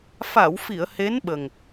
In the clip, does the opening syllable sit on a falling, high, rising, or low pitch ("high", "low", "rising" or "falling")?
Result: low